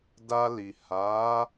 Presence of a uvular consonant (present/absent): absent